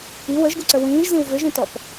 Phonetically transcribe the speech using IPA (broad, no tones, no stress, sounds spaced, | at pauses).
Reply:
i w ə ʒ ɡ u ǀ ə w ĩː ʒ z ĩ w v ʏ ʒ ĩ t ɔ p